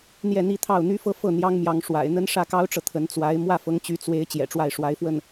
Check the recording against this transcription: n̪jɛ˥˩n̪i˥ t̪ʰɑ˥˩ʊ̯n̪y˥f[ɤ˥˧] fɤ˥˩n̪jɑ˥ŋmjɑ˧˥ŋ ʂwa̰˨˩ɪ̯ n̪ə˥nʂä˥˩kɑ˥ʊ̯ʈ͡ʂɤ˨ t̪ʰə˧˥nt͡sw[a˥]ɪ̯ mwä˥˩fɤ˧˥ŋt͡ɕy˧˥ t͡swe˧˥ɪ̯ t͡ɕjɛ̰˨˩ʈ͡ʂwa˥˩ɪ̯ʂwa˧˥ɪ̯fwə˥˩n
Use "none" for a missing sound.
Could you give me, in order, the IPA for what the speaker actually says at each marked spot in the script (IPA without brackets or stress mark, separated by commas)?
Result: ɤ˥˧, a˧˥